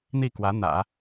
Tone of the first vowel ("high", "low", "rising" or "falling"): falling